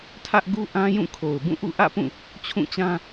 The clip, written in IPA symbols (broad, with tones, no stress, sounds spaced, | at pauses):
tʰ ä˦ ʔ ɡ u˦ ʔ ã˦ j ũ˦˨ kʰ o˨ ʊ̯ b ũ˦˨ ʔ ṵ˦˨ ʔ ä̰˦˨ p ũ˦˨ | t͡ɕʰ ũ˦˨ t͡ɕ ã˦